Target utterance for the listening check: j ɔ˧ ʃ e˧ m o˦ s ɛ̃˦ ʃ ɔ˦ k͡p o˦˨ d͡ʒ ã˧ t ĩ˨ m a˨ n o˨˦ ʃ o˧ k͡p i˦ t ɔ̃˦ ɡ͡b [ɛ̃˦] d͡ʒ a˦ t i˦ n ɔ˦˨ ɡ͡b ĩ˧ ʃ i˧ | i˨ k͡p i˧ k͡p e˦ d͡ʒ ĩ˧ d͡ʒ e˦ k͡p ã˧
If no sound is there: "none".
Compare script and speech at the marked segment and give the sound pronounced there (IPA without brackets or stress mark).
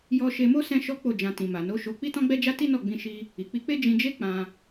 ɛ˦